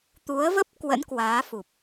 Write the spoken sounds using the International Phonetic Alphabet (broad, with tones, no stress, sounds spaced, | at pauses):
t̪ u˨˦ ə̯ v ə˦˥ p̚ k w ə̰˧˥ n k w aː˨˦ f u˨˩ p̚